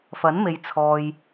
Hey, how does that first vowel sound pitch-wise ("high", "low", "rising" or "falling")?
rising